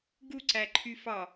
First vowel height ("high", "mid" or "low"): high